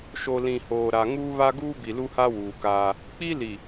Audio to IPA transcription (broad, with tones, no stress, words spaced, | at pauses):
ʃo˨ lĩ˨hoː˨ɾa˨ ŋuː˦βa˦ ɡuː˦bi˨lu˦ha˦ wuː˨kaː˦ | k͡pi˦li˨